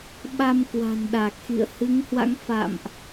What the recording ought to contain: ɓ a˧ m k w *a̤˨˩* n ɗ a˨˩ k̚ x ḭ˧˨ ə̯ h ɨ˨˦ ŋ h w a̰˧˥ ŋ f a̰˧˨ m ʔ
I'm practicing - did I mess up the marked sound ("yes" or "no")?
no